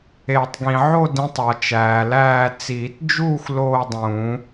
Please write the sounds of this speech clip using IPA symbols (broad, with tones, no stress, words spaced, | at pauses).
e˨˩˦tˤɡĩ˨ ʕo˥˧dĩ˨˦tˤ ɒ˨t͡ʃæː˨læː˥˧ t͡siː˨˩˦td͡ʒuː˥˧xʷ loː˥˧dˤũ˨˩˦